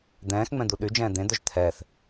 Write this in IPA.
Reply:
d̪ ɛ̃ː x ŋ͡m ɛ̃ d̪ u ɗ y d͡ʒ ɛ̃ː d̪ ẽ d̪ œ ʒ t̪ʰ ɛ θ

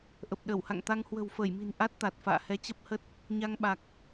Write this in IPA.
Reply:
ʔ ə˨˩ p̚ ɗ ə˧˩ w h a̰˧˨ ŋ t̪ a˧ ŋ h w ə̤˨˩ w f əː˧˩ j m i̤˨˩ n ʔ a˦˥ t̚ t̪ a˨˩ t̚ f a̰ː˧˨ h ɛ˨˦ t͡ɕ ə˦˥ p̚ h ə˦˥ t̚ | ɲ a˧ ŋ ɓ a˨˩ k̚

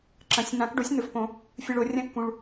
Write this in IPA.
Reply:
ǁ ɐ̃˨˩˦ sʲ n̪ ã˨˩˦ k ɖ o˩˥ sʲ n̪ ɵ˨ f p õ˨˩˦ | fʲ ɨ˨ ɭ o˨˩˦ rʲ ɐ̃˦ kː ũ˨ ɭ

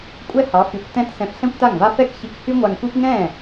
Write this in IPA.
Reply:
kʷʼ ɛ˥ h ɑ˩˥ f y˩˥ kʷ t ɛ̃˧ t s ɛ̃˧ f ɬ ɛ̃˥ kʷ t a˥˩ ŋ v a˥ f ɛ˥ k ç i˧ k h y˥ ŋʷ a˧ ŋ kʷ i˥ p ŋ ɛ̃ː˥˩

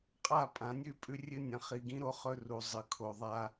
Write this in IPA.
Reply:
qʼ a˦˨ pʼ ã˨˦ nʲ ʉ˦˨ pʼ ʉ˦ rʲ ɨ˦ nʲ ɐ̃˨ χ i˦ ɡ ĩ˦ ɾ o˦ χ ɵ˦ r u˨ zˤ ɨ˨ kʰ o˨ ðˤ a˦

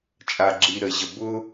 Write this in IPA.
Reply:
t͡ʃʼ a˨ ɡ͡ǁ i˨ ɾ ə˨ ʑ ə˨ b ʊ˦

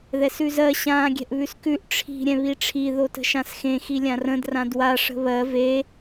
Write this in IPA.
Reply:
ð ɛ s ʉ z ɜ ɕ ãː ɡʲ ɛ̤ ʔ β ʉ s k ʉ ʔ ʈ͡ʂʰ i̤ ɾʲ ɛ̃ β i ʈ͡ʂʰ i ð o t ə̤ ʃ ã s x ẽ x i lʲ ã r ə̃ d r ã d w a ʂ ə̤ β ɜ v e

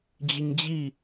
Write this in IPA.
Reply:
d͡ʑ ə ɲ d͡ʑ i

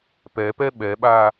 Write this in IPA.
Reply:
p ɛ p ɛ ɓ ɛ ɓ a

